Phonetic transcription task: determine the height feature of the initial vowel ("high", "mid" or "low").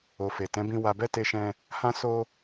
mid